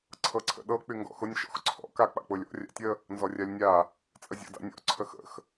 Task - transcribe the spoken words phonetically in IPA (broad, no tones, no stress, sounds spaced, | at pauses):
ǀʰ ɤ ǀʰ ə̰ ɗ ɤ k͡p y ŋ ɡ ɔ̰ x ʊ nʲ ʃ ɔ̰ x ǀʰ ɔ̰ k a k͡p a̰ k͡p ʊ lʲ ɔ̰ rʲ a̰ tʲ ə | n z ɔ rʲ a lʲ nʲ a | t͡sʼ ə zʲ ɔ̰ d a̰ nʲ ɔ̰ ǀʰ ə x ə̰ x